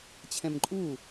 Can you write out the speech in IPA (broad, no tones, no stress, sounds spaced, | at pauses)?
t͡ɕʰ ɛ̃ m ǃʼ u